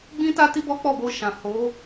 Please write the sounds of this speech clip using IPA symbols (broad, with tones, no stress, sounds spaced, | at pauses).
ɡ͡b ĩ˦ t a˦ t i˦ b ɔ˦ k͡p ɔ˦˨ b o˧ ʃ ã˨ h o˨˦